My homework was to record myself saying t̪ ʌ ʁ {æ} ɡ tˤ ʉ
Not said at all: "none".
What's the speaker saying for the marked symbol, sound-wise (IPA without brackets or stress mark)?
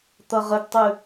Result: ə